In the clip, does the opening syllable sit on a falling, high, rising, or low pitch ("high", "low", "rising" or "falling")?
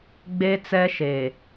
high